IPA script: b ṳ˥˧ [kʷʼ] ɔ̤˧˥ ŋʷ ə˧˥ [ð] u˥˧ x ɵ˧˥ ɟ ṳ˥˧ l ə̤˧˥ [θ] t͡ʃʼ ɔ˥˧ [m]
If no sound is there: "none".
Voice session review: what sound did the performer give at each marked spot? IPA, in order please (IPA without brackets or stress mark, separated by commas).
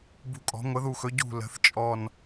kʼ, ð, θ, n